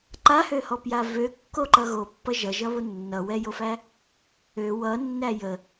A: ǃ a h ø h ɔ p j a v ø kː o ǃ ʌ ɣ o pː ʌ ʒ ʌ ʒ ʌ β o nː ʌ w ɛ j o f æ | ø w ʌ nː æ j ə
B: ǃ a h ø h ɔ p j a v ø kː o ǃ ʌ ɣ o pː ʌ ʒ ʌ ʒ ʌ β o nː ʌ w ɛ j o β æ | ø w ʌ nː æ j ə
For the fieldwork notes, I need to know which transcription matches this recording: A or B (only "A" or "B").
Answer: A